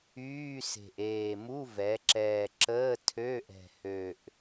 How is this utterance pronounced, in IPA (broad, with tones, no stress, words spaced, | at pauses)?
yː˧˥˧se̤˨˩ʔ eː˨˩ mu˧˥˧vɛ˩˧ǁɛː˨˩ǁəː˧˥˧ tʰø˧˥˧ʔɛ̤˨˩hø˨˩ʔ